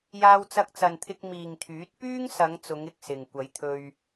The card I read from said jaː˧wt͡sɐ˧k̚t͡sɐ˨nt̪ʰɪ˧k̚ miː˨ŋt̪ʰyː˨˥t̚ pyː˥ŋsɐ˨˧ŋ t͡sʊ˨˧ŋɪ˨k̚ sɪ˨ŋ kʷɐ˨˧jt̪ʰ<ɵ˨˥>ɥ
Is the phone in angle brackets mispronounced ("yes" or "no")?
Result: yes